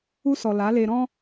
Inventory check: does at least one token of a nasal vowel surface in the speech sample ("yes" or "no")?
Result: yes